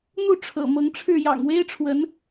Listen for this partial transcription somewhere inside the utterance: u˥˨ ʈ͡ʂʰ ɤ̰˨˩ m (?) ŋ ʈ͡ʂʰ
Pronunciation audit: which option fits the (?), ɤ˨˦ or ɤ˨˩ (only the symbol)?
ɤ˨˦